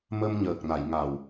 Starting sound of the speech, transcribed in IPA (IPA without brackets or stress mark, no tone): m